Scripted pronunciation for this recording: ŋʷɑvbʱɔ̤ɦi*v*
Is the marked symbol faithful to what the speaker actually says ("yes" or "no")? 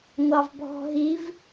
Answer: yes